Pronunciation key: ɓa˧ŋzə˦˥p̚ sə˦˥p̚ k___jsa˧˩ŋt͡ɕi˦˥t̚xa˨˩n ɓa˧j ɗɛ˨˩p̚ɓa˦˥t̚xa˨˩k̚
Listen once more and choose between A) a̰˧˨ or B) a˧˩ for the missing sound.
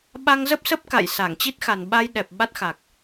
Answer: A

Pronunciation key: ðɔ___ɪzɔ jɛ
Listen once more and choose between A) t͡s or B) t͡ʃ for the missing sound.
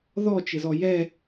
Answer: B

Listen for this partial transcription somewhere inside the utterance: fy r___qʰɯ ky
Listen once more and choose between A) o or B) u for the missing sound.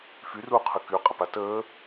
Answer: B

